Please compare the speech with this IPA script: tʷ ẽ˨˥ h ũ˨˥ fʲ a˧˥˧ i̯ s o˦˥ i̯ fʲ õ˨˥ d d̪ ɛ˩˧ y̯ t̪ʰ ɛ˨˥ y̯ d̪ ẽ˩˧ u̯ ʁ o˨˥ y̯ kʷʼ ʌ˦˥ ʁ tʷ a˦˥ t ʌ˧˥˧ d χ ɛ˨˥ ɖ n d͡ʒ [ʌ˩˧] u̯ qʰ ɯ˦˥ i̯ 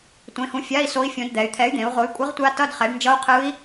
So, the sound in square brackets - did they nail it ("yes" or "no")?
no